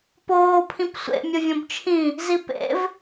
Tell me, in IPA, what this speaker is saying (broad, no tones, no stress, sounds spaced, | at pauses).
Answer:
p oː pʰ ĩ p sʷ ḛ mʲ ʊ vʲ õ b t͡ʃʰ ĩ | z i p ḛ v